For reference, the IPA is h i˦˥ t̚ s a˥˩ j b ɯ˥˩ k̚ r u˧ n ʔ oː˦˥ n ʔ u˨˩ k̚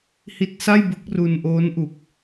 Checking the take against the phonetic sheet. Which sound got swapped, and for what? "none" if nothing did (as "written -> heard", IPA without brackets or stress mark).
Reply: ɯ˥˩ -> ɯ˦˥